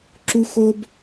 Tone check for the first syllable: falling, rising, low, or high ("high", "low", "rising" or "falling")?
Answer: high